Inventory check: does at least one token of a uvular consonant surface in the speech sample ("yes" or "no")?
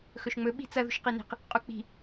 yes